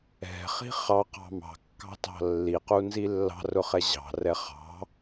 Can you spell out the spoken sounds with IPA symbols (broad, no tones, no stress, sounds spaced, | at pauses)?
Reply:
ɛ̤ χ i̤ χ ɑ q ɑ̤ m ɑ̤ kː ɑ̤ t ɑ̤ lː i q u n z i lː ɑ̤ r ʊ χ ɛ ʑ ɑ̤ r ɛ χ ɑ̤